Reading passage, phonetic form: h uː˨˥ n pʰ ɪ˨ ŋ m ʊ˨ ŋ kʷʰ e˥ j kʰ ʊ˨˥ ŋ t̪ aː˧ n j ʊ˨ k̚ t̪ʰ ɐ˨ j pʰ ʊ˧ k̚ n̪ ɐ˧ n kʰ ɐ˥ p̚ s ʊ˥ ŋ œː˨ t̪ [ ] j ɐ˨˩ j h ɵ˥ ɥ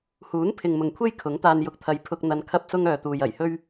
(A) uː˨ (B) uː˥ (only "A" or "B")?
A